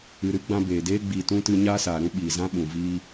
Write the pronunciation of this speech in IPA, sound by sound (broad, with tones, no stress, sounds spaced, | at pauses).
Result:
ɨ˨ ɾ ɨ˦ ɡ͡b ã˧ b eː˨ d eː˦ ɡ͡b iː˨ t ũ˧ t ɨ˧ ɲ aː˦ s aː˨ ɾ ũ˦ ɓ iː˨ z ã˦ ɓ ũ˨ v iː˦